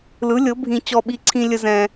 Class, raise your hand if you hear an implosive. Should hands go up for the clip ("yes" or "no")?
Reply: yes